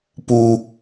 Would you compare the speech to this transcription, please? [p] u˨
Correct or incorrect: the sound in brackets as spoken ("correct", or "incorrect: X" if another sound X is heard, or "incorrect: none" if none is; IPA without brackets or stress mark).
correct